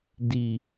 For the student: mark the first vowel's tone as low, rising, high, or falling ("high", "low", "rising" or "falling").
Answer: low